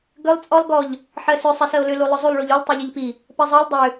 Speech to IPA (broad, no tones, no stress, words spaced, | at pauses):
ɡʏlˠ t͡sʼɔlˠ ɡɔʎ | ħɜsʏ sˤisɜo̯lʏ lulˠʏzˤulˠ ɭuʎulˠ tˤiʎiʎpi | pɜzˤɜlʲ dˤʏ